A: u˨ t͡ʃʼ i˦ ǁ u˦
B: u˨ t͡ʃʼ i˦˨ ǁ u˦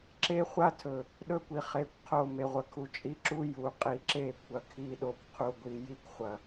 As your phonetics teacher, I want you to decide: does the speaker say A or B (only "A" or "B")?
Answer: A